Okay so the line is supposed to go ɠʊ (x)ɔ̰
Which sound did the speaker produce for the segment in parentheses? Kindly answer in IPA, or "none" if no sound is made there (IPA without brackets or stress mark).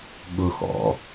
x